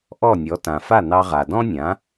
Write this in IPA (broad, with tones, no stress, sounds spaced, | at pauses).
ʔ ɔ˥˩ nʲ ɔ˩˥ t ã˩ f a˥˩ n ɑ˧ ʁ a˩ d ɔ̃˥ nʲ ã˩˥